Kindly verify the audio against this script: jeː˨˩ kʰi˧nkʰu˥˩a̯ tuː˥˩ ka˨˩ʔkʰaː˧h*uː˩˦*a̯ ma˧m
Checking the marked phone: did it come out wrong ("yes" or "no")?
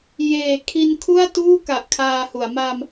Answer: yes